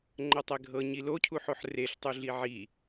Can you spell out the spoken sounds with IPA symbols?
ŋ͡ǃɤtˤɛɡʱɤ ɲilocʰuħoħ reɬtˤuɮi ʕi

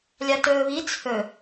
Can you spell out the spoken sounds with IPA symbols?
lʲatɵːβi t͡sʰɵ

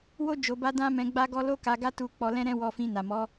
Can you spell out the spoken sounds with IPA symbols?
wo˦ d͡ʒo˧ba˦ dã˦mɛ̃˧ɡ͡ba˦ɡɔ˦ lo˦ka˧ɡa˦tu˧ k͡pɔ˧lɛ̃˦ɾɛ̃˦ wɔ˧fĩ˧ na˨mɔ˨˦

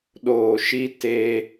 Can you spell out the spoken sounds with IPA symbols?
ɗoː˨ʃi˧ te˧

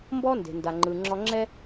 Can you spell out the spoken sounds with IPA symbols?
mbɔ˥nde̤˩ nda˩ŋ͡ǃɯ˩ ŋ͡ǁɔ˧ŋ͡ǁɛ˥

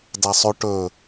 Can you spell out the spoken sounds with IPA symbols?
dasˤɵ ʈɵ

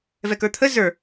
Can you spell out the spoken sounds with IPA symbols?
vɛkə˞t̪ʰə zə˞

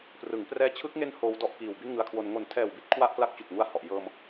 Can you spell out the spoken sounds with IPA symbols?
prɯ˩˦ŋ prɛː˧t͡ɕʰɯ˦˥k̚ŋe˦˥n hoː˦˥wdɔ˥˩ʔkiː˨˩w bi˥˩nŋɯ˧a̯kʰwo˧n ŋo˨˩ntʰɛː˨˩wbi˦˥t̚ kʰwa˥˩ʔkla˦˥k̚ t͡ɕu˨˩k̚ŋu˦˥a̯hɔ˨˩ʔ jɤː˧m

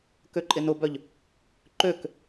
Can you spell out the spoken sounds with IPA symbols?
køǃʼɪnʊbœʎ | ǃøk

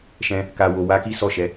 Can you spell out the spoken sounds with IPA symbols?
ʃɛ̃˧ | ka˨wo˨wa˨˦ ki˦sɔ˦˨ʃɛ˨˦

